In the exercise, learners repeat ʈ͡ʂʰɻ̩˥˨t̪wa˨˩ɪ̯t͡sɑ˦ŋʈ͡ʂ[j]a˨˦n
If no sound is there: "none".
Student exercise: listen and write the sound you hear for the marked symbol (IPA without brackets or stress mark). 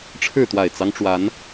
w